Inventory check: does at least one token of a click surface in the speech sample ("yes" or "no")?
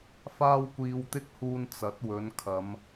no